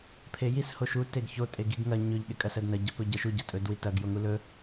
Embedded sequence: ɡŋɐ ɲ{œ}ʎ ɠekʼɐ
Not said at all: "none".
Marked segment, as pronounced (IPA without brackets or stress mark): ɵ